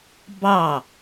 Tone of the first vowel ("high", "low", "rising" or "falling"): falling